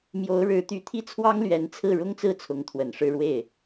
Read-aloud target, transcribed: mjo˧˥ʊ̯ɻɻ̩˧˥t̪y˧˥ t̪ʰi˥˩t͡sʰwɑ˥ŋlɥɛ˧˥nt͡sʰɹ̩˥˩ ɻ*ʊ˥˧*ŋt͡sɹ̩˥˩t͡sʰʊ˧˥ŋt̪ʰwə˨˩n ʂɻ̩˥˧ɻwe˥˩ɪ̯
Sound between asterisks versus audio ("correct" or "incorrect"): incorrect